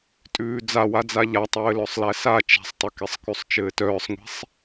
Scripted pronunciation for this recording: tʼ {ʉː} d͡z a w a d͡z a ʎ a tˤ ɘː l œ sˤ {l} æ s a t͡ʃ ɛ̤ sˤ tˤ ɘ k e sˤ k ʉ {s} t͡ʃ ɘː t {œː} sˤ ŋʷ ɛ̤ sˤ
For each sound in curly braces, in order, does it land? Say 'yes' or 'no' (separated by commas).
yes, yes, no, yes